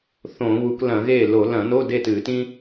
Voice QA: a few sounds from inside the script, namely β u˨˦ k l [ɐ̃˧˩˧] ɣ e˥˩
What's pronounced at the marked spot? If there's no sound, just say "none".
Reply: ɐ̃˧˩˧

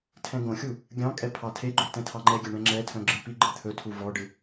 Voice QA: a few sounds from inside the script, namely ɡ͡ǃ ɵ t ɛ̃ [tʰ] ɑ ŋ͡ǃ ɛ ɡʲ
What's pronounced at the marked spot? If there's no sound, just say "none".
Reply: tʰ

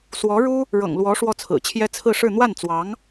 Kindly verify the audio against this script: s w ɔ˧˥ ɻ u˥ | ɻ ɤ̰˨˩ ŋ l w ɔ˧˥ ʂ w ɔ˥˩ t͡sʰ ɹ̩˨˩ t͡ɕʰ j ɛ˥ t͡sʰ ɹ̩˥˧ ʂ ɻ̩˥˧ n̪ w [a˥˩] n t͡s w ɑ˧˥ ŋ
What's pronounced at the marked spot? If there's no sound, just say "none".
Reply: a˥˩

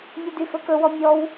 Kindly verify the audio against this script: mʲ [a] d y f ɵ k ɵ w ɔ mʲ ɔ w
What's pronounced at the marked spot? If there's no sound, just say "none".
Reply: ʌ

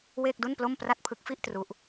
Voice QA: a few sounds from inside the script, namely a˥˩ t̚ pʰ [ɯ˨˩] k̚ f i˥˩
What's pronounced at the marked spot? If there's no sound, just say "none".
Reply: ɯ˦˥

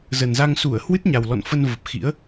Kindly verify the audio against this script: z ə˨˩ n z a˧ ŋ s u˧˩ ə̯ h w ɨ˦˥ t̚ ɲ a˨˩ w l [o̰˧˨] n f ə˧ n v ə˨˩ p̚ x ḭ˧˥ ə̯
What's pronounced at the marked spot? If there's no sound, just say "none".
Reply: ɔ̰˧˨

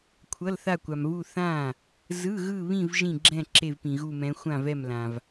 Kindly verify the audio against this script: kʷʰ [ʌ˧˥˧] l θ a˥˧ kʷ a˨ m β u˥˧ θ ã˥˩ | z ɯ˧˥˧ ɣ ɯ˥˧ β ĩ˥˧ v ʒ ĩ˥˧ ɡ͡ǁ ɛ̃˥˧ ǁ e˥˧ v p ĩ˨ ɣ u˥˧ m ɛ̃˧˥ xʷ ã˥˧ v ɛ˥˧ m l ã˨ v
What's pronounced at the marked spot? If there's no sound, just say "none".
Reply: ʌ˧˥˧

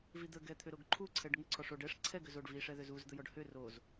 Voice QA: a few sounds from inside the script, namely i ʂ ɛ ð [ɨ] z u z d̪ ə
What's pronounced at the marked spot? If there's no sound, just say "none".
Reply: ʏ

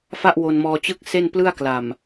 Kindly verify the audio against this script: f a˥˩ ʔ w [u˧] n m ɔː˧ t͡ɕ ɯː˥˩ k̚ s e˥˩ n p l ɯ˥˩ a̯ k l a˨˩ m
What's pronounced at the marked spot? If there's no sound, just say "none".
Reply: o˧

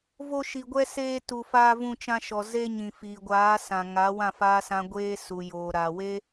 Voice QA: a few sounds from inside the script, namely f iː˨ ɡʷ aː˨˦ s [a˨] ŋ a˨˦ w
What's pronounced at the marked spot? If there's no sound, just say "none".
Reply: ã˨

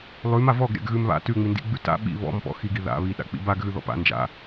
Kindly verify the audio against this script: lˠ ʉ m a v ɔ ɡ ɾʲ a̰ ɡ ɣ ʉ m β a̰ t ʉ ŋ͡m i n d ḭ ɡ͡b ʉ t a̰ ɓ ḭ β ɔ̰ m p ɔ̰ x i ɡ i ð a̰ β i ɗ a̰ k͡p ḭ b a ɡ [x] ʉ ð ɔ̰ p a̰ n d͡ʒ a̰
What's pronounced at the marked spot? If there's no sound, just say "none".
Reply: ɣ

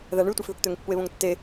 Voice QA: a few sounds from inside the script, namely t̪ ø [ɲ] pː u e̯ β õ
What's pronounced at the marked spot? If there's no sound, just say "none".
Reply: ŋ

